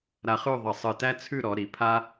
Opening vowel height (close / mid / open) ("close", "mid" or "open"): open